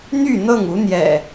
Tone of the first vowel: falling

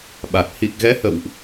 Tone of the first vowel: low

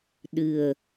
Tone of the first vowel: low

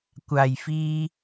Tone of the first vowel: low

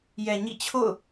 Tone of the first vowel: low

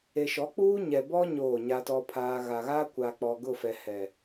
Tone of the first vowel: low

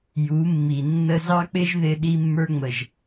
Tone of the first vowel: rising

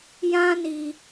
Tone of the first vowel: high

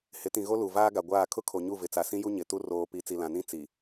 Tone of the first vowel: rising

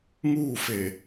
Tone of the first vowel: falling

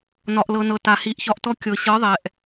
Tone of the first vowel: low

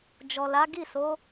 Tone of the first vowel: low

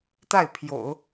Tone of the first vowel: falling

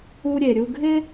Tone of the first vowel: high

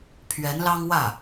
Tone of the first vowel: rising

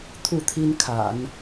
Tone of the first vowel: falling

